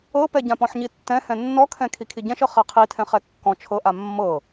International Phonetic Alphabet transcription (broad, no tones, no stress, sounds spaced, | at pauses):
ɤ p ɛ ɟ ã p ɔ̃ ħ ɲ i tː ɛ̃ h ɛ̃ nː ɔ kʰ ɛ̃ kʰ i kʰ i ɟ ɛ̃ ʃ ɤ χ ɛ qʰ i tʰ ɛ̃ χ ɛ kː ɔ̃ t͡ʃʰ ɤ ʔ a mː ɤ